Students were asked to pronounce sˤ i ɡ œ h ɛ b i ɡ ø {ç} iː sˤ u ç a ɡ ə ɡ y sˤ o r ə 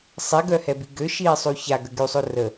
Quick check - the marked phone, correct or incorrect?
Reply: incorrect: ʃ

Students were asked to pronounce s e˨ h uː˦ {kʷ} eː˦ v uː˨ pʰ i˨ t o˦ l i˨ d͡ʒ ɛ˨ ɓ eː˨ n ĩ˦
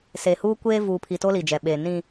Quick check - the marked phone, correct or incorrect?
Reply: correct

